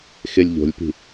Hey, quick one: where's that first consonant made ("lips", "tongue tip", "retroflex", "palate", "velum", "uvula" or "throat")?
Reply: velum